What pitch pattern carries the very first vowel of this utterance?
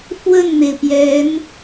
falling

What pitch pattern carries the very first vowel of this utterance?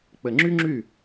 low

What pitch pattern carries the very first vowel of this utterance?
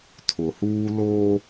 low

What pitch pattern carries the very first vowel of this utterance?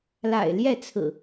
low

